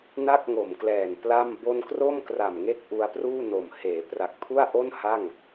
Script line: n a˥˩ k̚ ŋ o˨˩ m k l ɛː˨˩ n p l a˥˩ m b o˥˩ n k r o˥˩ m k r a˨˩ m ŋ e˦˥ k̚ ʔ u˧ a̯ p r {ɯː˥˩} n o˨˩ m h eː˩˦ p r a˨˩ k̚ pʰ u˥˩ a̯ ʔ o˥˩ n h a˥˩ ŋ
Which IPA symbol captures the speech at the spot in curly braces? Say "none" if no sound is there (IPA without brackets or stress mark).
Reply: uː˥˩